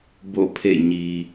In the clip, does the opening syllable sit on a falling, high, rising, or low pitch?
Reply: falling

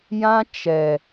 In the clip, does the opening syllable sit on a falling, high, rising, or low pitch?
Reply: high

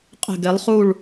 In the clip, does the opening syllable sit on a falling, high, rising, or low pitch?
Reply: falling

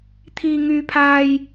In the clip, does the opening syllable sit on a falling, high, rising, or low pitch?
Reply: low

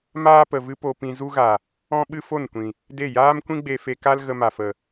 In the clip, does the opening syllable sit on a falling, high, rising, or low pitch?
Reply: high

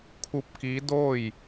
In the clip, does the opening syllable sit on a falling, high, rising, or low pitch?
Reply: rising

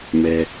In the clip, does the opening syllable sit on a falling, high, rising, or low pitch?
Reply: high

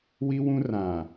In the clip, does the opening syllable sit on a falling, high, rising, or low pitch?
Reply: high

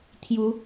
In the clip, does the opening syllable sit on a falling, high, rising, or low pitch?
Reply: rising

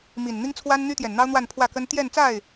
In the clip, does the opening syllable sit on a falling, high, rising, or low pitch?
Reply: low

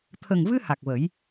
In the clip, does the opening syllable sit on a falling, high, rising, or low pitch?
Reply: low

